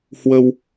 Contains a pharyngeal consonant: no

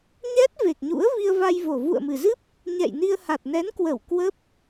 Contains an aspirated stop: no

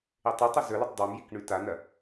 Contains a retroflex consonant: yes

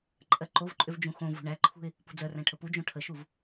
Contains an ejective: yes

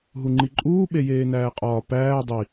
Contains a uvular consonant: yes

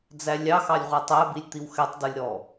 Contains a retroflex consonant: no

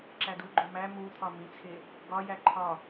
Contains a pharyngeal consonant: no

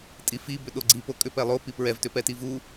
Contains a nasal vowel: no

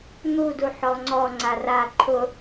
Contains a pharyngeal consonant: yes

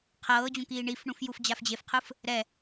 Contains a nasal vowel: yes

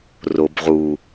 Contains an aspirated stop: no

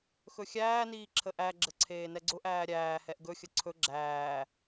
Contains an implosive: no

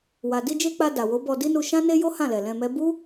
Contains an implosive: no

